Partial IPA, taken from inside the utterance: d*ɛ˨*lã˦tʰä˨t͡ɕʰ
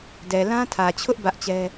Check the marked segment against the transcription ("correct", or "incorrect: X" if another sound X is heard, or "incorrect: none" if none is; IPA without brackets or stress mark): correct